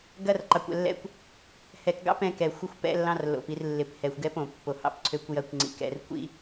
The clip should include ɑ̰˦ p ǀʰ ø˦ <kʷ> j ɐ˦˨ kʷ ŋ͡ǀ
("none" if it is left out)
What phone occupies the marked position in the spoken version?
kʷ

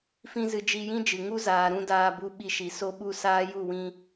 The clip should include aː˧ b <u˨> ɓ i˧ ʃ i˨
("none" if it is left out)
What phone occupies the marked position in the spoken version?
u˧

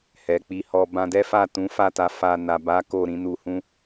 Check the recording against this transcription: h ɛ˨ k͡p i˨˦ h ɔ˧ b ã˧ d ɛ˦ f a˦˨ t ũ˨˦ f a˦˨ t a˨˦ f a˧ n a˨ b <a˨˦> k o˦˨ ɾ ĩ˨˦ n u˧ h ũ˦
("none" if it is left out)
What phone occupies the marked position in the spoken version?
a˨˦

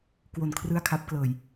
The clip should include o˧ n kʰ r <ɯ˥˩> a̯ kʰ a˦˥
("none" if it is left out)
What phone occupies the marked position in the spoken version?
ɯ˥˩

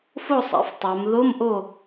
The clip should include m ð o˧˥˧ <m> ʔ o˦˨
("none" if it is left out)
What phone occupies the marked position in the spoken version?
m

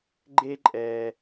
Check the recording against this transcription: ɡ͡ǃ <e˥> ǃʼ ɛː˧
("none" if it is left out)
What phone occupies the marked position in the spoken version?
e˥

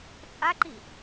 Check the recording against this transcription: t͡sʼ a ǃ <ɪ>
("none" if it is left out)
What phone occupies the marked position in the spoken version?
i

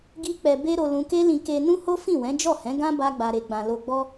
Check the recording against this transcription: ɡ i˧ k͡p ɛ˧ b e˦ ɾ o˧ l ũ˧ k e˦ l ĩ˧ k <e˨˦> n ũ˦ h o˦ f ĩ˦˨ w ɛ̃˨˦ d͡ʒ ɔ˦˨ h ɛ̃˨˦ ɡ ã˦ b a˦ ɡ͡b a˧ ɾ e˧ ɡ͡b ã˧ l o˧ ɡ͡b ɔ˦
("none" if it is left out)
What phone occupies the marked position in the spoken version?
e˧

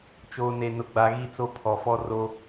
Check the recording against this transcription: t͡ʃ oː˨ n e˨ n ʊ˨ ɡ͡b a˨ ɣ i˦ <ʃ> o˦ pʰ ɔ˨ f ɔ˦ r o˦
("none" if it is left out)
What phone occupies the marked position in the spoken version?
t͡s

